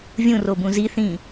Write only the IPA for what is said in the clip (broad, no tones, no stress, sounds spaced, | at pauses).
vʲ ũ r o b ũ z i θ ĩ